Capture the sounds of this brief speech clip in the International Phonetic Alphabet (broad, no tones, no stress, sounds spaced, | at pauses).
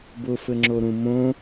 b ʊ f ɘ ŋ͡ǁ o ɾ ũ m õ